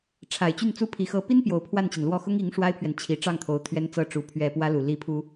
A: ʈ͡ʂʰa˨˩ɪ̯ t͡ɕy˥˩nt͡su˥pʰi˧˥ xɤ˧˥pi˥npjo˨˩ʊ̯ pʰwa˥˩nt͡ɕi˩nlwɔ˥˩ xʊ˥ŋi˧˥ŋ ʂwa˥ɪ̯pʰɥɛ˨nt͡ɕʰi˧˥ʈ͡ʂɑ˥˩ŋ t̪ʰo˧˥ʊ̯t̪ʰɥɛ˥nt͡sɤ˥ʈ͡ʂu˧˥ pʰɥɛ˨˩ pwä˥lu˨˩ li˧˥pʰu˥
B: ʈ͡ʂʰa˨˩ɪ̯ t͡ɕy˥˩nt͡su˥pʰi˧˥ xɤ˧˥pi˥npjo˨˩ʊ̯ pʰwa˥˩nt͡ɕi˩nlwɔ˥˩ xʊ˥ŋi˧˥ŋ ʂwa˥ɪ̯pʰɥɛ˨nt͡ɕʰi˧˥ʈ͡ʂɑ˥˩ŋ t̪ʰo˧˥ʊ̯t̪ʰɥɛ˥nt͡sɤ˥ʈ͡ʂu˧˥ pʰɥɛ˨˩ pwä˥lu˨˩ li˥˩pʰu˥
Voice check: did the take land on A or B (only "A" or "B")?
B